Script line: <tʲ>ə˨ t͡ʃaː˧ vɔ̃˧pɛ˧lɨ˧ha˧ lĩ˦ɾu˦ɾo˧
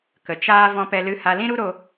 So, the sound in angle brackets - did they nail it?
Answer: no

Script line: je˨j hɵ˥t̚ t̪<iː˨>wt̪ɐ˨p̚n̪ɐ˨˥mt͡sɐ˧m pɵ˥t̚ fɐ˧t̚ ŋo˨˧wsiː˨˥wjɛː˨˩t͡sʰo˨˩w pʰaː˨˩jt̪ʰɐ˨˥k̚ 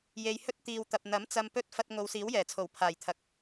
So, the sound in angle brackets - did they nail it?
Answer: yes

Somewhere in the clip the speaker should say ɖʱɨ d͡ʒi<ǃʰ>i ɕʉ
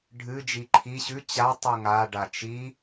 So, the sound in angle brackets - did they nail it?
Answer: yes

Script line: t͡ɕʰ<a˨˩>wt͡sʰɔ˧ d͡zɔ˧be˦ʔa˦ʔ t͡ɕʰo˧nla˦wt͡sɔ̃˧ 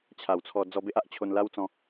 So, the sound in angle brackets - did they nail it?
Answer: yes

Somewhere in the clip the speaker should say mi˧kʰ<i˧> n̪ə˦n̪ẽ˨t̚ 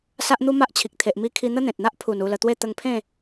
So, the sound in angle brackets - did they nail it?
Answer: yes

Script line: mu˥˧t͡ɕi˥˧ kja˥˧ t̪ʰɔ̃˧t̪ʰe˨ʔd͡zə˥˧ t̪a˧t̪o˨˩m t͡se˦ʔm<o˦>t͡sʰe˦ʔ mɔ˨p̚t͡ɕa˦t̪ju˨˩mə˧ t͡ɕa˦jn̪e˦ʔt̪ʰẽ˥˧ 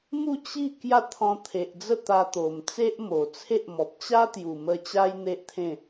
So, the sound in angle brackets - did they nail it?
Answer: no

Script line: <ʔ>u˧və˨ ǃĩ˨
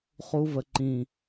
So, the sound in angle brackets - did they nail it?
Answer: no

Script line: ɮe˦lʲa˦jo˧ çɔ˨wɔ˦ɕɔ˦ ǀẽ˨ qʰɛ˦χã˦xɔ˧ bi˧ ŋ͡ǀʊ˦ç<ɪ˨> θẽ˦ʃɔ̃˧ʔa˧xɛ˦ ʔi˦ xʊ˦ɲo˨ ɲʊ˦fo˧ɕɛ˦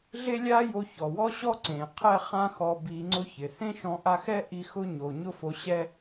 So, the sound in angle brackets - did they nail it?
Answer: yes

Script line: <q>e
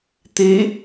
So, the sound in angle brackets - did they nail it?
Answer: no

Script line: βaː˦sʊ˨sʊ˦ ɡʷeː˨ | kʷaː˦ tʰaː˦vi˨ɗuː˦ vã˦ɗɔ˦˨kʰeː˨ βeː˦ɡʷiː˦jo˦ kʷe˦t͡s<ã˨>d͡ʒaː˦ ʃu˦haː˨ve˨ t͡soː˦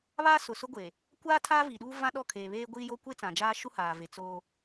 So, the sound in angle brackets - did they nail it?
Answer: yes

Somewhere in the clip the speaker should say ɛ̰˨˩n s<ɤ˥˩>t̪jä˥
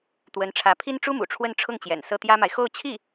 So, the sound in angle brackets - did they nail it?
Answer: yes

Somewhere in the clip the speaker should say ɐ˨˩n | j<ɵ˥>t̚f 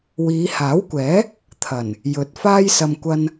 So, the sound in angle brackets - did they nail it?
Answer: no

